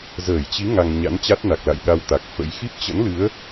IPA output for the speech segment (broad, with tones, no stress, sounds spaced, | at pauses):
z əː˧˩ j t͡ɕ i˨˦ ŋ a˧ ŋ ɲ a̰˧˥ n t͡ɕ a˦˥ t̚ n a˨˩ k̚ l a̰˧˨ j ɗ a˧ w t̪ a˨˩ k̚ f ə̰˧˥ j x i˦˥ p̚ t͡ɕ ə̰˧˥ n l ɨ˨˦ ə̯